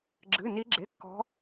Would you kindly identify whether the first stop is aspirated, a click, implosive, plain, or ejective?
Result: click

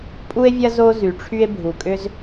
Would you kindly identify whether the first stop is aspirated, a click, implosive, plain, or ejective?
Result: ejective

